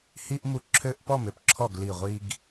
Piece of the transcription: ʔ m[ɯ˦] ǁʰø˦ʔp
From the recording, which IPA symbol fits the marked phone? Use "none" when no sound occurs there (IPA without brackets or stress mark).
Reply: u˦